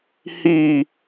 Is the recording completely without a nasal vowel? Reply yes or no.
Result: yes